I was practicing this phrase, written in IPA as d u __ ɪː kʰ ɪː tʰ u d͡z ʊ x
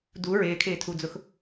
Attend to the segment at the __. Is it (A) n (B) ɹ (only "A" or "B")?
B